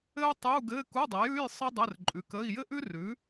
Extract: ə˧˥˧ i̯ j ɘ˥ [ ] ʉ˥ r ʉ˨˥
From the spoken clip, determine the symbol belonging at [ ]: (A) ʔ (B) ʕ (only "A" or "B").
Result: A